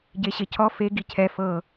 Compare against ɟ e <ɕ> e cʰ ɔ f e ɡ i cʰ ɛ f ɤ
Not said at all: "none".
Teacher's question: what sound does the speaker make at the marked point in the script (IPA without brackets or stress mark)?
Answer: ɕ